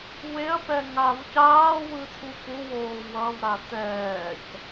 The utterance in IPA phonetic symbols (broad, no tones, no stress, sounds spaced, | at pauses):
w e ɐ̯ p ɛ ŋ a v c aː w ɯ t̪ʰ u p u w oː w ʌ v ɾ a t̪ ɛː c